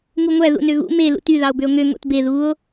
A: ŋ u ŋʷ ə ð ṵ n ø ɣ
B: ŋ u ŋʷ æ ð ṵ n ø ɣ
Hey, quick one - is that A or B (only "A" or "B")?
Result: B